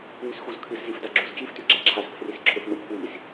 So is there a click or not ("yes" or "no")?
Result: yes